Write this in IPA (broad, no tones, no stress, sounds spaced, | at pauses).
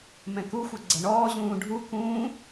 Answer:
m ɛ̃ k u xʷ ɐ ɡ͡ǀ ɐ ɳ ɔː ʑ ũː ɖʱ u k ũː